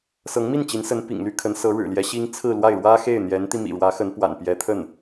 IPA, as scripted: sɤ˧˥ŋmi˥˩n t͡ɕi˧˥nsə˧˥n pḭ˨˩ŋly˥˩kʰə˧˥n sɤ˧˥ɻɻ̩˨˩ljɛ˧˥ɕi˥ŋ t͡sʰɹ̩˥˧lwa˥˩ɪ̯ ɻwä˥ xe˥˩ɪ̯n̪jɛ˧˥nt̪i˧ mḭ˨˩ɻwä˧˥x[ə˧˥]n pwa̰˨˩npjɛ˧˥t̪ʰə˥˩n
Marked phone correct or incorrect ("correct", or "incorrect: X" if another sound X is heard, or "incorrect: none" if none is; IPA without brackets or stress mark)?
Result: correct